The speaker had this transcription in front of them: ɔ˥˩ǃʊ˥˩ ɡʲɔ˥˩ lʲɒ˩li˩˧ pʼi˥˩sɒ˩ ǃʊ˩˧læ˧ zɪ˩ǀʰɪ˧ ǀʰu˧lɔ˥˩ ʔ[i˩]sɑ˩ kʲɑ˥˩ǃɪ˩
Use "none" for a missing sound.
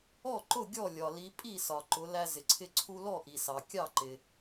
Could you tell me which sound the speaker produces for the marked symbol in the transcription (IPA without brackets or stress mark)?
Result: i˩